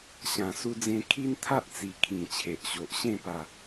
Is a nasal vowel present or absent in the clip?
present